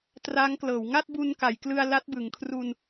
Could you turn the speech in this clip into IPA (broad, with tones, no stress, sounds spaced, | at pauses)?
t r a˦˥ ŋ k l ɤː˩˦ w ŋ a˥˩ t̚ b u˧ n k a˩˦ j k l ɯ˧ a̯ l a˦˥ t̚ b ɯ˩˦ ŋ kʰ r u˧ n